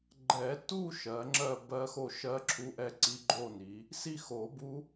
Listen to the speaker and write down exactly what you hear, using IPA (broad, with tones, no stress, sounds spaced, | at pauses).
ɡ͡ǃ ɛ˨˩˦ t u˥˧ ʃ ɜ˨˦ ŋ͡ǁ ɜ˥˧ b ɜ˦˥ x o˥˧ ʃ ɜ˦˥ ǁʰ u˧˥˧ ʔ ɛ˥˧ ǀ i˦˥ ɡ͡ǃ o˥˧ n i˨˦ | s i˥˧ x o˨˩˦ b u˦˥